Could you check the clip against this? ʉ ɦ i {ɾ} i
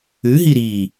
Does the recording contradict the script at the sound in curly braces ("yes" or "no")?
no